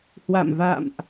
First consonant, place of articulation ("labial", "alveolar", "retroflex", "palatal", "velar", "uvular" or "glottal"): glottal